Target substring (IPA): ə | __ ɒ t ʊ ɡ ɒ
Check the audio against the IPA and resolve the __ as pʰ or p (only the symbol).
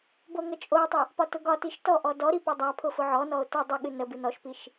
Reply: p